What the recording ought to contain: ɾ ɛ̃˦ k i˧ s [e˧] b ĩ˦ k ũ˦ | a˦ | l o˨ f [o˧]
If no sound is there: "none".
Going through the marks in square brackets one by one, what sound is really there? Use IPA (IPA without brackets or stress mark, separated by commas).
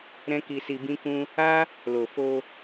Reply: i˧, o˧